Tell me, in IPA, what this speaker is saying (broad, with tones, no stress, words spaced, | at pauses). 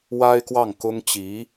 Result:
wa˥ɪ̯kwɑ˥˩ŋkʊ˥ŋ t͡ɕi˧˥